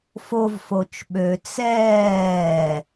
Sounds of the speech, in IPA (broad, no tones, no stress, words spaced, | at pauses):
fovfot͡ʃ ɓø t͡sɛː